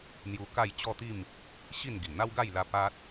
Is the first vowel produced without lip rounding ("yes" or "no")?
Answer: no